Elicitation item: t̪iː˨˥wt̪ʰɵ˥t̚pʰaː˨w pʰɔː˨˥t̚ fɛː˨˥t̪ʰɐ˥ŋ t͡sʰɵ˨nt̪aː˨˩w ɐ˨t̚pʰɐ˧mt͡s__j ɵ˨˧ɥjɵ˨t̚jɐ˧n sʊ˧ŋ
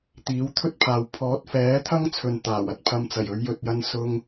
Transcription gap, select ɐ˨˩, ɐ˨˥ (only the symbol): ɐ˨˩